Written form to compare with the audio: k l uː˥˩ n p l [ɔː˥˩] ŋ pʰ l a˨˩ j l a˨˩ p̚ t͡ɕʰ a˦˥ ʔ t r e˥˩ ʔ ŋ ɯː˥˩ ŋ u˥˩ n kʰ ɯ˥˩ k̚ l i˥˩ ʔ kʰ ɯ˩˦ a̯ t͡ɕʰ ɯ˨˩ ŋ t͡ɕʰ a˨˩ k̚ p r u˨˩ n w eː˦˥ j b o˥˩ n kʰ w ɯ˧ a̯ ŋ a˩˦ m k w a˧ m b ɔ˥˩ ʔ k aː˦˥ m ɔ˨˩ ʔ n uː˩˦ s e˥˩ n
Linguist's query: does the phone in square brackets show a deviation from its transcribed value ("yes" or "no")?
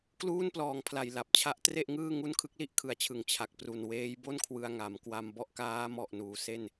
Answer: yes